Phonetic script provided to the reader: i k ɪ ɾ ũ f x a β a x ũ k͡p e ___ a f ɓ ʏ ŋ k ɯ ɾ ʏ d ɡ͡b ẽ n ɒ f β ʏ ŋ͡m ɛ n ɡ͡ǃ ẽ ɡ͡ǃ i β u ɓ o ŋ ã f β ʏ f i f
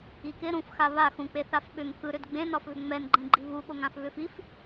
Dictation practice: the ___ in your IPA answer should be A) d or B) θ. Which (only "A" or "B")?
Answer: B